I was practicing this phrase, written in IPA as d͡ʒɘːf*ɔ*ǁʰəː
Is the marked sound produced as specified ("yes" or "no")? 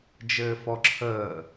yes